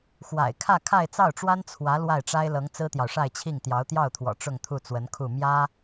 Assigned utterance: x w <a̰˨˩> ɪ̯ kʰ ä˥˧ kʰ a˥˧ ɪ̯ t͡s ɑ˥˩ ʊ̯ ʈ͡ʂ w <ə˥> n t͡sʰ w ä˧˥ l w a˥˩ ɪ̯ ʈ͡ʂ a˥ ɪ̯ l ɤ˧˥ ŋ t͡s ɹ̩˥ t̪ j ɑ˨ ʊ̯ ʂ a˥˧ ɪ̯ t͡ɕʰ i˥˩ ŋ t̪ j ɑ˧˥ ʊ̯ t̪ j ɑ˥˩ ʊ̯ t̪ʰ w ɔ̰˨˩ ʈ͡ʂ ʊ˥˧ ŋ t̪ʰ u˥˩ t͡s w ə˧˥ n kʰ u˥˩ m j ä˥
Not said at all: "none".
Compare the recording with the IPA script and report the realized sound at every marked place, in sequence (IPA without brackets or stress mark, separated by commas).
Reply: a̰˨˩, a˥